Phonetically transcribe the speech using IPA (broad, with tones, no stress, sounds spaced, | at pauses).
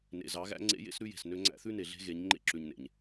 n ḛ˨ z ɑ˨˦ ɣ æ̰˦ ŋ͡ǀ ḛ˦ j ḛ˦ s ɾ ʉ˦ j e̤˨ s n ø˦ ŋ͡ǀ æ̰˦ θ ʉ˦ n e˨ ɮ e̤˦ ɣ e˨˦ ɲ ŋ͡ǃ ḛ˦ ǁ ʉ˨ ɲ n ḛ˨ ɲ